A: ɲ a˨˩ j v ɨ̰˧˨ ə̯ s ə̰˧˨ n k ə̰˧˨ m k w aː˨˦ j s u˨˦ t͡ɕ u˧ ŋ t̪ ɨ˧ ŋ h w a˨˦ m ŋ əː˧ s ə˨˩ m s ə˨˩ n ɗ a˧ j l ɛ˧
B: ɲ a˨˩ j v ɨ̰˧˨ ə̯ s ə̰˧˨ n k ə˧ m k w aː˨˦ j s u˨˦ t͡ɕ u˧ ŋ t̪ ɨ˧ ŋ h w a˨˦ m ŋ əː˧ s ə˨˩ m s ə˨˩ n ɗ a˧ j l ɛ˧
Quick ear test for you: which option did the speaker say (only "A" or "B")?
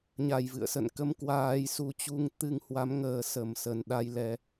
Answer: B